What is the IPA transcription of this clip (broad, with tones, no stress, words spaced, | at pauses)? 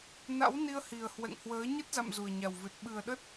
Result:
na̰˧˥w ni˧ə̯hi˨˩ə̯ hwɛ̰˧˨ŋhwəː˨˦ ɲə˦˥t̚za̰˧˨m zu˨˩ə̯ɲa˨˩wvɨ˨˩t̚ ɓɨ˨˩ə̯ɗə˦˥t̚